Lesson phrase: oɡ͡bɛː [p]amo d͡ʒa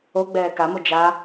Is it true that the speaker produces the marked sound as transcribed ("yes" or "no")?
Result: no